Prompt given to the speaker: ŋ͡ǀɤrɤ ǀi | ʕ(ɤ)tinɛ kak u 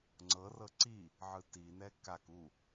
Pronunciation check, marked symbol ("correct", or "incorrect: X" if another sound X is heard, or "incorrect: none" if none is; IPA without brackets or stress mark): incorrect: ɯ